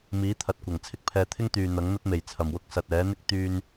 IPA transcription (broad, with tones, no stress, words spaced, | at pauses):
miː˨˥t̪ʰɐ˨t̚kʷɐ˨˩ŋ t͡sʰɪ˥k̚pʰɛː˧ t̪ʰɪ˥ŋ t̪yː˨ n̪ɐ˨˥ŋn̪ɐ˥t̚me˨˩j t͡sʰɐ˨˩mwʊ˧k̚sɐ˨t̚ ɛː˨˥n̪ɪ˥k̚ t̪yː˧n